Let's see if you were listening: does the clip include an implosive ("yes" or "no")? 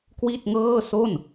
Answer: no